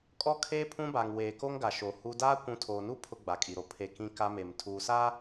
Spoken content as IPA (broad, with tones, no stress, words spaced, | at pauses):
kʼɔ˦kʰeː˦ pʰũ˦ba˨ŋweː˨ko˦ŋ ɡa˨ʃo˨ hu˦ daː˦ kʷũ˨˦tʰoː˨nu˦ pʰʊ˦ɡ͡ba˨kʼi˨ɾo˨ pʰe˨ kĩ˦ka˦ me˨m tʰuː˨ saː˦